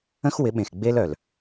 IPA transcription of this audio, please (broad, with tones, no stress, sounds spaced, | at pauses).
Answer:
ə̃˦ x w ɪ˨˦ ɓ ẽ˨ x ɡ͡b e˦ l œ˨ l